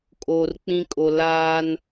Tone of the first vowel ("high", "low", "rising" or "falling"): low